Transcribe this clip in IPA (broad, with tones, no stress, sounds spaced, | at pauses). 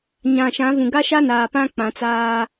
ɲ ã˨ ʃ ã˨˦ v ũ˨ ɡ a˦ ʃ a˦ n aː˨ p ã˦ k͡p ã˨˦ t͡s aː˦